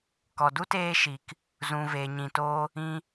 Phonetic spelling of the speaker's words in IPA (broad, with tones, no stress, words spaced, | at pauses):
kɔ˨du˦teː˧ʃi˨k | zũ˨veː˨ɲĩ˨toː˧ | ĩ˧